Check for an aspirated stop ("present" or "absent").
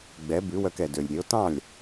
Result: absent